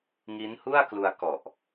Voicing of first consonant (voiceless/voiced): voiced